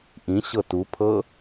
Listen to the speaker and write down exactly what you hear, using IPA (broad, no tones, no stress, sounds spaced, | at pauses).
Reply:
ʔ ĩ ɕ ɤ t u pʰ ɤ